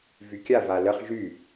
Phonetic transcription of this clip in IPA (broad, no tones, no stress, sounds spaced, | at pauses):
v y kʲ a v a l ə χ ʒ y